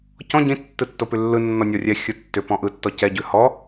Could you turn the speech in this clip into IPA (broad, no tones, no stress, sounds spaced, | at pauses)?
c ɔ̃ ɟ ĩ tː ɯ tː o p ʉ lː ɯ nː ɔ nʲ ɔ rʲ ɛ xʲ ɯ tː ʏ p ɔ̃ ʔ ɯ tː ɔ c ɛ ɟ ʉ h ɔ